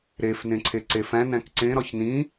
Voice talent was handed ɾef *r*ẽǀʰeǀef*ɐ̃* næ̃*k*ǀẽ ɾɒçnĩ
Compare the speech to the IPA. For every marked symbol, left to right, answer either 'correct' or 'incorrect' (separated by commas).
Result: incorrect, incorrect, correct